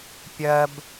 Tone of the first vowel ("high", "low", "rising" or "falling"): low